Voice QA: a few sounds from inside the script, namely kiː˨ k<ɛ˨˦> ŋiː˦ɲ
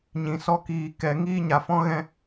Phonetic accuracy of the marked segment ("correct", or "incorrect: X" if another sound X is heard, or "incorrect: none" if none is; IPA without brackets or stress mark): incorrect: ɛ˧